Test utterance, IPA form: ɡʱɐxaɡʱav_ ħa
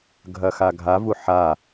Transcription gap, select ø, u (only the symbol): u